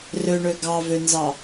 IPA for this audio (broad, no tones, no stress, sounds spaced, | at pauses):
r ø ɳ ø ɡ ɑ v ø n z ɑ